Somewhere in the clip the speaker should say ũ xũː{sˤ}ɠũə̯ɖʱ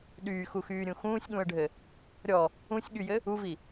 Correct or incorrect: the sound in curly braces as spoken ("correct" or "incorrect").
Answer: incorrect